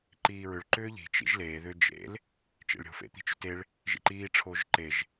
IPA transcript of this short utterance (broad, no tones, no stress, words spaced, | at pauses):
ǃiːɹʏɭ ǃʏːʎi̤ t͡ʃḭʒleː ðʏ d͡ʒḛl | t͡ʃḛɭɾʲo̤ fḛt̪i̤t͡ʃʏteɭ | ʒḭǃiː ʈ͡ʂʰoːʒǃeʒ